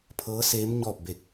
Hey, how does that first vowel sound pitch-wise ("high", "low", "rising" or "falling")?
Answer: rising